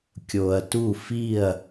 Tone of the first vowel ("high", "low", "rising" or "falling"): low